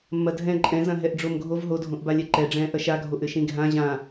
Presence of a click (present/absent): present